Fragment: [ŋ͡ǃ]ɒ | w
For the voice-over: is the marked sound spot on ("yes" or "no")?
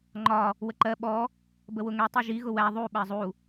yes